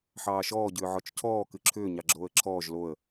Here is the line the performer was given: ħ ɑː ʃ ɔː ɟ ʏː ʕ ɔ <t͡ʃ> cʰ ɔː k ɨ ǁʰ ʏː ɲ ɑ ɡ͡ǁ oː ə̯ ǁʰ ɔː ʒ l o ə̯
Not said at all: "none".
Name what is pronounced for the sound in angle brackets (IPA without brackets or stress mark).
t͡ʃ